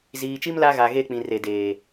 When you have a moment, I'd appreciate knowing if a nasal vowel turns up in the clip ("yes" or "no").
yes